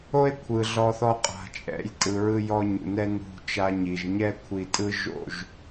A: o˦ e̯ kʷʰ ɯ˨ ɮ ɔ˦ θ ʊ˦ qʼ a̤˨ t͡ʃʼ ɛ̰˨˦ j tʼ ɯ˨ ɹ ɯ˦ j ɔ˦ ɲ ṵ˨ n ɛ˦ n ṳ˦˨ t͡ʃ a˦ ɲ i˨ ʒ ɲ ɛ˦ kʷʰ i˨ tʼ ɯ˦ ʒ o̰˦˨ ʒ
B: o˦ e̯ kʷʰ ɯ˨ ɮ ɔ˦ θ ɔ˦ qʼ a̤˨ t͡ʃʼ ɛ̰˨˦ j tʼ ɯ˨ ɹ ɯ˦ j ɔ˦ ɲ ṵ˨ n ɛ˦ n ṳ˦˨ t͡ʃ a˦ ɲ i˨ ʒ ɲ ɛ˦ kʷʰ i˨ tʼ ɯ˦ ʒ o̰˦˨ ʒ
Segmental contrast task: B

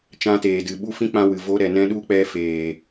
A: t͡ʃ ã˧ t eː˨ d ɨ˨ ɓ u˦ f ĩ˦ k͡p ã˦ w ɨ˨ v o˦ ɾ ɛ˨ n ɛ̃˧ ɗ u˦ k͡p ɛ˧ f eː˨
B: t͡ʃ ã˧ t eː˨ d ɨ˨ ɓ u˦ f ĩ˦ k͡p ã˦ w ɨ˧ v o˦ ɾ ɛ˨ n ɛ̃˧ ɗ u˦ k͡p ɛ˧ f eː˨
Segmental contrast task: A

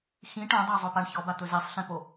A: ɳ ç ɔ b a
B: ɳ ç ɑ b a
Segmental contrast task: A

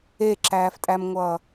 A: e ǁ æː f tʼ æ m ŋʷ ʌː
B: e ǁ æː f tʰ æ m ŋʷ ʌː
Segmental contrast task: A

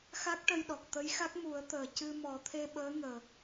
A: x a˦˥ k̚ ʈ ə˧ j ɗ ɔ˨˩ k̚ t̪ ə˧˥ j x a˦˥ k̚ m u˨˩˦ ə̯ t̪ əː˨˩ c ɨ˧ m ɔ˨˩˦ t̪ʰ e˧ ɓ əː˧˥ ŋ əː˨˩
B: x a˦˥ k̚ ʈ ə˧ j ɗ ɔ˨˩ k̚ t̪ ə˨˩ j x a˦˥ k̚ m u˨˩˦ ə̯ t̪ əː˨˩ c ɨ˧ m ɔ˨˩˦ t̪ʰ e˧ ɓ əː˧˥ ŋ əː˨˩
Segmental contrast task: A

